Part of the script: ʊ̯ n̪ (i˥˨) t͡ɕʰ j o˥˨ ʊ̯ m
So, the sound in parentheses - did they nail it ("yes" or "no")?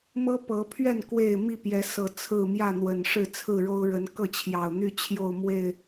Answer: no